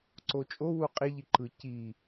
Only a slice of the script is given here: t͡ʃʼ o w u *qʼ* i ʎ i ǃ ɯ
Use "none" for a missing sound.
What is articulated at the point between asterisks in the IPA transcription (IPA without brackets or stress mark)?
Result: qʼ